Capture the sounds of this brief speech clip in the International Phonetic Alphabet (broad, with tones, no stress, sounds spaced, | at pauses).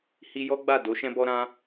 h i˧ j ɔ˦ ɡ͡b a˦˨ d o˨˦ ʃ ɛ̃˦ b ɔ˦ ɾ ã˦